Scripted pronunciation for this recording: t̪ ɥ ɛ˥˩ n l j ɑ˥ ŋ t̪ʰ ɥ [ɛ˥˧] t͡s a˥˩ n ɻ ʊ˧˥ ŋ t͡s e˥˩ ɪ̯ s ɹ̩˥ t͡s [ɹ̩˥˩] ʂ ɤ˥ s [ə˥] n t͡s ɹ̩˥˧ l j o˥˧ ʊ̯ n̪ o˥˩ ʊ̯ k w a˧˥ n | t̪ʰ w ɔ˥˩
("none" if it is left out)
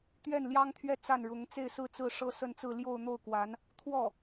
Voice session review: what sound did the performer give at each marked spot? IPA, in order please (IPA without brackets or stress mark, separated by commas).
ɛ˥˧, ɹ̩˥˩, ə˥˧